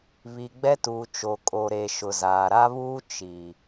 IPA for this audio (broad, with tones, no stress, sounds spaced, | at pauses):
β i˨ ɡ͡b ɛ˦ t uː˨ t͡ʃ o˨ kʼ o˨ ɾ e˨ ʃ ʊ˨ z aː˨ ɾ a˦ β uː˦ t͡ʃ i˨